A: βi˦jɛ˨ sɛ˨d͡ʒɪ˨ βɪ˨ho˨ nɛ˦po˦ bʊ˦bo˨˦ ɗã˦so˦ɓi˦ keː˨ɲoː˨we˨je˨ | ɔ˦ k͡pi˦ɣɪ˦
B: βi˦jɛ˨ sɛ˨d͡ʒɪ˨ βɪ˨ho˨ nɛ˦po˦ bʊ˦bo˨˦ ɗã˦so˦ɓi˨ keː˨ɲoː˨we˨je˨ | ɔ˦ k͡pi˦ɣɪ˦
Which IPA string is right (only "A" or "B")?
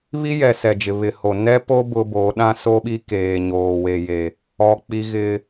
A